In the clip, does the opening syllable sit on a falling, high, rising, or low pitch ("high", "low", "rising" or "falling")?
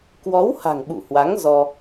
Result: rising